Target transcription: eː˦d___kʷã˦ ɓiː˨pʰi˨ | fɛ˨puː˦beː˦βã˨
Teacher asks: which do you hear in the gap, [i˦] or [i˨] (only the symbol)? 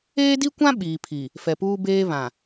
i˦